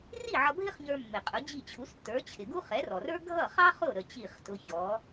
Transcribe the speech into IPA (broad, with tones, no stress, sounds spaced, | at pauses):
r i˥˩ ʕ ʌ˧ bʱ ɪ˥ χ ɲ ə˞˧ mː ɪ˩ qʼ ʊ˩˥ d͡ʑ i˥˩ t͡ɕʰ u˩˥ s tː ə˞˩˥ t͡ɕʰ ɪ˩ ɡ u˥ χ ɛ˩˥ r ɔ˩ r ə˞˥ ɡʱ ʌ˥˩ χ ɑ˥ χ ʊ˥˩ ɾ ə˥˩ t͡ɕ i˥˩ χ t ʊ˧ ç ɔ˩˥